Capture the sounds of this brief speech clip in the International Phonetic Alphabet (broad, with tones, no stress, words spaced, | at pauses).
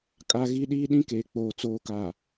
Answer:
kʼa˦ɣi˦ ɗiː˦ɗĩ˦keː˨ k͡poː˨ t͡soː˨kaː˨